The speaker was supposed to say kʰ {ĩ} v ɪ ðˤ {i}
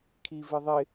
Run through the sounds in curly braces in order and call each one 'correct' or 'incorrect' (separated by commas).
incorrect, incorrect